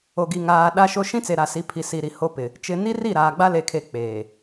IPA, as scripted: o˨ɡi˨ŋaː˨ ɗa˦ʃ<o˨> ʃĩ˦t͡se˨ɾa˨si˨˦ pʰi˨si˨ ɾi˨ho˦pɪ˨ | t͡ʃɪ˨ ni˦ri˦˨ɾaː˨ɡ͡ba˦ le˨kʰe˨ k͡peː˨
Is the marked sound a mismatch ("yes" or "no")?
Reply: yes